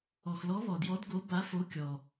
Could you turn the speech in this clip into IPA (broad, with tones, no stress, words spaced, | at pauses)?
ɔ˩xlɔ˨˦βɔ˩djɔ˨˦d ɡo˨˦ ba˨˦fo˨˦kʲɔ˩